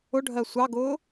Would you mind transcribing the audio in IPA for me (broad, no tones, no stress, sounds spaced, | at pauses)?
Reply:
ʊ ɖʱ ɜ sʷ ɑ ɡ ʊː